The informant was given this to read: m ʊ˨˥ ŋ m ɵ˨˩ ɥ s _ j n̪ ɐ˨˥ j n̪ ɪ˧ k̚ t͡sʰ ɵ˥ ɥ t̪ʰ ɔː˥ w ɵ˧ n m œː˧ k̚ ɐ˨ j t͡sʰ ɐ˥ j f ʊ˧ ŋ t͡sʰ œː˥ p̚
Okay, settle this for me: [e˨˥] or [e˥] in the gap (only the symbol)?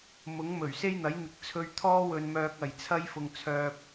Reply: e˥